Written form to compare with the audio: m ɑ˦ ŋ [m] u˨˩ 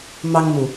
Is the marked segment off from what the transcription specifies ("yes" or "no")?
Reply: no